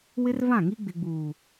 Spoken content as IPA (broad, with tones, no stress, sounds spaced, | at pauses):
w ɪ˦ r v ã˦˨ ŋ i˦ ɡ͡b ɪ˨ ɡ͡b uː˨